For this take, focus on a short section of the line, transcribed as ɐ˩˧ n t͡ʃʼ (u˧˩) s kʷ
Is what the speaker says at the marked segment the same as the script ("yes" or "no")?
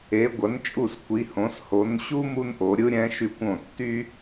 yes